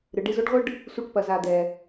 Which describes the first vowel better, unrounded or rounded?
unrounded